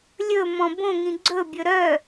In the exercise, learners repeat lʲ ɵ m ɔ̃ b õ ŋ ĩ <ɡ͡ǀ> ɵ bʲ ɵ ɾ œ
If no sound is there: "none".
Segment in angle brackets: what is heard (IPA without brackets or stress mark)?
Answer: ɡ͡ǀ